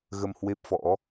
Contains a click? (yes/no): no